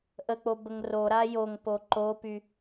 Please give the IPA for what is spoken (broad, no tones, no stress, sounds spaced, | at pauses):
ʔ ə k͡p o b ə ŋ r o ɾ a j o ŋ p o ǃ o p y